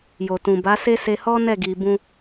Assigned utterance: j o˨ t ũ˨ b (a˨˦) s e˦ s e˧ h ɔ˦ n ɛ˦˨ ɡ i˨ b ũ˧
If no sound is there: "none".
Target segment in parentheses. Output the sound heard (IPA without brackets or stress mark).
a˨˦